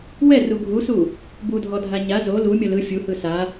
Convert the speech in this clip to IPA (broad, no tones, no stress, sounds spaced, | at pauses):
w ɛ r u ɡʱ u s u | b u dʱ ɔ dʱ a ɲ a z o l u mʲ ɔ l ɯ fʲ u h ɯ s a